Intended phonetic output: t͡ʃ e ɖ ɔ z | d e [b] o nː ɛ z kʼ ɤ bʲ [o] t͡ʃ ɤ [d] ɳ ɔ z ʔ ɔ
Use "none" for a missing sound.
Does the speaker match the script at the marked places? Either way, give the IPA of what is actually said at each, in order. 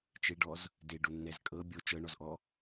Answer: ɖ, o, none

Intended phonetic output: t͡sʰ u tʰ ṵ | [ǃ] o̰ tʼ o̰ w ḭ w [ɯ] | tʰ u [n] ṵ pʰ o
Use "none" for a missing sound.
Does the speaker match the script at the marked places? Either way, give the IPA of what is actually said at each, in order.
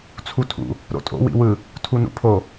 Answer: ɾ, ɯ, n

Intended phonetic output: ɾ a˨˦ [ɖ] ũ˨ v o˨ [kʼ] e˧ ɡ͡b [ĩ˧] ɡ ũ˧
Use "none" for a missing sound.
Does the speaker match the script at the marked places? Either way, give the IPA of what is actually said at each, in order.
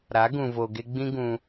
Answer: ɡ, ɡ, ĩ˧

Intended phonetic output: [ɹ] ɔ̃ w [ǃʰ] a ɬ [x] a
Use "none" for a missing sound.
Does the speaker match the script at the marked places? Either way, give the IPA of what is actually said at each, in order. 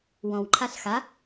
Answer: w, ǃʰ, x

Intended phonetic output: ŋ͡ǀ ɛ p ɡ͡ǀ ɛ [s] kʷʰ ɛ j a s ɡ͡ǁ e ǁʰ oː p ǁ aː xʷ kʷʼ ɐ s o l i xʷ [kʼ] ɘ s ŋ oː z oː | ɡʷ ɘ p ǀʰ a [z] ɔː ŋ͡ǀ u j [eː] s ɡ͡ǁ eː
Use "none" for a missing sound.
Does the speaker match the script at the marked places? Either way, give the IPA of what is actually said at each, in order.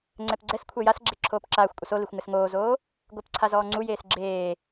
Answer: s, ŋ, z, eː

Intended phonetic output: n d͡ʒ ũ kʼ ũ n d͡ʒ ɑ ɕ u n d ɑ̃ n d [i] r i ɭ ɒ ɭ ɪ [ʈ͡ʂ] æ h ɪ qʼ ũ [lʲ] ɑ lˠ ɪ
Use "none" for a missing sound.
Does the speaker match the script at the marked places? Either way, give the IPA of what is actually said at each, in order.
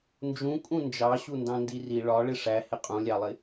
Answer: i, ʂ, lʲ

